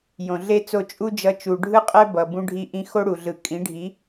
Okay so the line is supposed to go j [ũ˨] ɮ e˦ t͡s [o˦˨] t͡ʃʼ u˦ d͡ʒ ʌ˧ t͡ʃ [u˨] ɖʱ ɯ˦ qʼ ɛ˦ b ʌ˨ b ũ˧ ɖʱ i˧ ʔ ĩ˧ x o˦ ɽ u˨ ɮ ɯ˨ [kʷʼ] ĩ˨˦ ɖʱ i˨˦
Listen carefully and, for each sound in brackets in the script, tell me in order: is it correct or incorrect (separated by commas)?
incorrect, correct, correct, incorrect